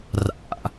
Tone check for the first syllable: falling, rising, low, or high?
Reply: high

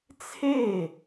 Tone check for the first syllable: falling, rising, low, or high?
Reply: falling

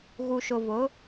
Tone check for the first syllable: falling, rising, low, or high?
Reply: low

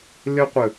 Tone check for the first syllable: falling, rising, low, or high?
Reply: high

